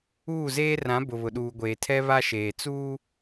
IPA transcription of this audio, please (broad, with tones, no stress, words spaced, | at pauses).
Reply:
uː˦˨zeː˦rã˨˦ bʊ˨βʊ˨ɗuː˨ɡʷeː˨ tʰɛ˦βa˦ʃeː˨ t͡suː˦